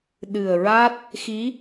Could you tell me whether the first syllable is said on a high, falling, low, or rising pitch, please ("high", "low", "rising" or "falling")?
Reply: low